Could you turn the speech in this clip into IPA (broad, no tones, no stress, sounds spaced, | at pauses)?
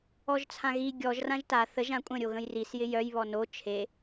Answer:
ɔ ʒ t͡sʰ ã ɣ i ɡʲ ɔ ʒ r ã ʒ t a θ ə ʒ ã kʷʼ ə̃ ɾʲ o ɣ ə̃ j r i s j ɪ j œ j β ɔ n o t͡ʃʰ e